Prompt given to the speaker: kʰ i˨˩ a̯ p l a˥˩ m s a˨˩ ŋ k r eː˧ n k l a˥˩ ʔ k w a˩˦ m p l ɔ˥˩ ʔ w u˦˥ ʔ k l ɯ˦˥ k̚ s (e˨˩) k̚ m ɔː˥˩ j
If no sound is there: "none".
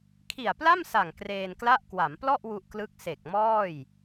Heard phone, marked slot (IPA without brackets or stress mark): e˨˩